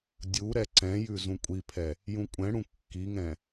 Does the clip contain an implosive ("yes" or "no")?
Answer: no